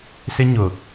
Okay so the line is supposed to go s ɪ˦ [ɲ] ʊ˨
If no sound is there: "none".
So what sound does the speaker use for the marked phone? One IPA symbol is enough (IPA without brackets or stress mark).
ɲ